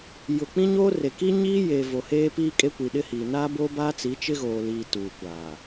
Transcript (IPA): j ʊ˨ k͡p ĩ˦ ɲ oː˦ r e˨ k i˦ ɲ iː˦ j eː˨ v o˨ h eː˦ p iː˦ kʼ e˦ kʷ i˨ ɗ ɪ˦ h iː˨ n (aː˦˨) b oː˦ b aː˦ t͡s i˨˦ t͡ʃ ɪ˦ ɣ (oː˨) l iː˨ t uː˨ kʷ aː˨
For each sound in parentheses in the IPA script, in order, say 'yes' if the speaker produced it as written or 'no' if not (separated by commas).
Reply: no, yes